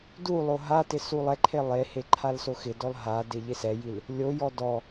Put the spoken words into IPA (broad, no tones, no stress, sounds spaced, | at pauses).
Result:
d u lˠ o ɦ a t ɪ s u lˠ ɛ ǃʰ e lˠ e h e ǃʰ a l s o x ɪ d ɔ l ɦ a d e ʎ ɪ s ɛ j i l | lʲ o j ɔ d ɔ